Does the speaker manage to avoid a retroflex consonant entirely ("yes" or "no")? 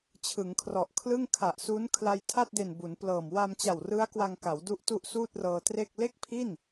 yes